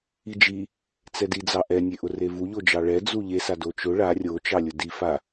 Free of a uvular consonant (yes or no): yes